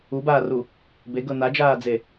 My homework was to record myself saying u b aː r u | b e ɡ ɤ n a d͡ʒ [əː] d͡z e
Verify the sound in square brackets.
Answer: incorrect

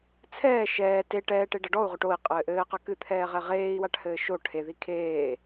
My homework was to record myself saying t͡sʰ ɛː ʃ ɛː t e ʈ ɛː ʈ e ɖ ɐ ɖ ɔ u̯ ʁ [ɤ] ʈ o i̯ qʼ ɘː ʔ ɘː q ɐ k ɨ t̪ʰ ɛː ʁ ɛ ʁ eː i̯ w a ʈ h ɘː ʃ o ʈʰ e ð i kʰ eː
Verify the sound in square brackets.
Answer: incorrect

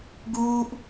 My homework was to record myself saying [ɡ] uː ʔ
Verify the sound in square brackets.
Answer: correct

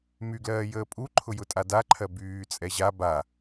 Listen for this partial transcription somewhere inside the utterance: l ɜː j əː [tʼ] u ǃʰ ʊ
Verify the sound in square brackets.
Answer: incorrect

